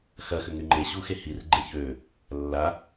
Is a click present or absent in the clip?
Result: present